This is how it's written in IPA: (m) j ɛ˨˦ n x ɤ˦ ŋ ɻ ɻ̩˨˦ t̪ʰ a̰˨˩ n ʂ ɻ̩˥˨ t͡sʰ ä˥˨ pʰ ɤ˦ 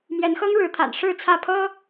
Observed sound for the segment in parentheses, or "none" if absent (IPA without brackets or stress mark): m